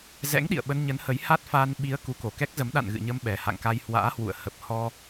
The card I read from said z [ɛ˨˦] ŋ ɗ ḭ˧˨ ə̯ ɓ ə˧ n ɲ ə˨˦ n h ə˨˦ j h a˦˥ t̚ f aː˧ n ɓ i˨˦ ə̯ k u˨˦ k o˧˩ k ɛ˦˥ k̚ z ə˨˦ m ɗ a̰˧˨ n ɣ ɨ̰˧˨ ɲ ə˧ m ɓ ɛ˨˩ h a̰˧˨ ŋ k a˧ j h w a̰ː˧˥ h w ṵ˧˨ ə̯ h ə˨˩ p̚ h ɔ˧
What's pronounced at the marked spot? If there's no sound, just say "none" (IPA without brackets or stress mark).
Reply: ɛ̰˧˥